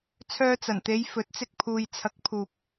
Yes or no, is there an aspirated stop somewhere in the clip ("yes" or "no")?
yes